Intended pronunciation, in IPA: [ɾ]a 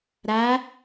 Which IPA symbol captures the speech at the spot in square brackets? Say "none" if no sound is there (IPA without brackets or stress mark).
ɾ